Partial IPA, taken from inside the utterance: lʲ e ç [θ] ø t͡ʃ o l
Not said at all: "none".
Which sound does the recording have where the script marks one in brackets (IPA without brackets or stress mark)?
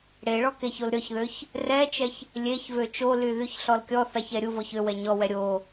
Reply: v